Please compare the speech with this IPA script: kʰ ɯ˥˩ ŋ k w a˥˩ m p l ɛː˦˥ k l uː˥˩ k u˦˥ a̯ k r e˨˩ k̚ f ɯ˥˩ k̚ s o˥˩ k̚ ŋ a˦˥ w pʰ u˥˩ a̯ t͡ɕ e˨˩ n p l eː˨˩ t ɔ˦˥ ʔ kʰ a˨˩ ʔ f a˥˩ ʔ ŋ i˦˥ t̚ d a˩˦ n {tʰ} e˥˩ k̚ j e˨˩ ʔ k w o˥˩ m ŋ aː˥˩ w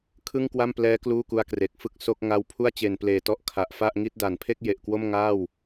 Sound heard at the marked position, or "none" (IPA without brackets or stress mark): pʰ